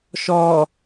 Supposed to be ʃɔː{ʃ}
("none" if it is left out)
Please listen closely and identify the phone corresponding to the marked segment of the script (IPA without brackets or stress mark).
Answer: none